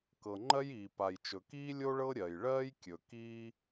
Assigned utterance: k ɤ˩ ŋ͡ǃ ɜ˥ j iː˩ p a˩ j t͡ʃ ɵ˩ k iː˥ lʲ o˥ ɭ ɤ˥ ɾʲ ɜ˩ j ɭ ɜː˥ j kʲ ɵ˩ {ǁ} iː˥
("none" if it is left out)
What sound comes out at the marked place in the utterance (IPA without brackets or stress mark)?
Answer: k